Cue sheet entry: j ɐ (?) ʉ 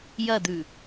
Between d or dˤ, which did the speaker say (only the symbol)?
d